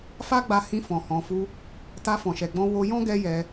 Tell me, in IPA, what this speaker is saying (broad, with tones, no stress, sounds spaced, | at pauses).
f a˦ ɡ͡b a˧ h ĩ˧ f ɔ̃˨ h ɔ̃˨ f u˧ | t a˧ f ɔ̃˨ ʃ ɛ˨ ɡ͡b ɔ̃˧ w o˧ j ɔ̃˦ ɡ ɛ˦ j ɛ˧